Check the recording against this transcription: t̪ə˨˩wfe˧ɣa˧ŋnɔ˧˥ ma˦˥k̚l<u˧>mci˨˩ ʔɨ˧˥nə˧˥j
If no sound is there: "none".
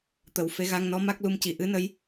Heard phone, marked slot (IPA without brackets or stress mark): u˧